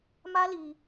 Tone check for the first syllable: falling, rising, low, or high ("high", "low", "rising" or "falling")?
high